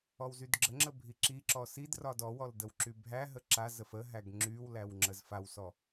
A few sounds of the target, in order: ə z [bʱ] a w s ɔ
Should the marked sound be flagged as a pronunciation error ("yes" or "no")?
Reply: yes